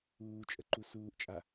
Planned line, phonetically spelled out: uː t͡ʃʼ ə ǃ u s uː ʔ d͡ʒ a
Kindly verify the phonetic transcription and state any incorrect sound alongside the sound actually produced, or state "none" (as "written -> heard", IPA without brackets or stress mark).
d͡ʒ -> t͡ʃʼ